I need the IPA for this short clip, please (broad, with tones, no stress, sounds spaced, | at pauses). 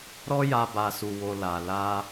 ɾ ɔ˦ j a˧ b a˨ s u˨ w o˨ l a˨ l a˧